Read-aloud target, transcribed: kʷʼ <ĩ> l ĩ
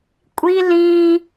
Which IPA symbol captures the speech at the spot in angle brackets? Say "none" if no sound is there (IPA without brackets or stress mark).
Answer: i